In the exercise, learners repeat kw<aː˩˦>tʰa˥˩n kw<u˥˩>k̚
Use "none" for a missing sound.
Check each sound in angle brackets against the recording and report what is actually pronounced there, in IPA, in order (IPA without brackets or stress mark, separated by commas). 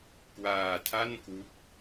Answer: aː˧, u˦˥